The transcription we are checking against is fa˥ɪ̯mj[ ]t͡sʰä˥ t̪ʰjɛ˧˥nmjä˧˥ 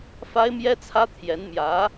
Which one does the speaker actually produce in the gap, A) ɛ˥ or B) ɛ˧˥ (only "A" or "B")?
A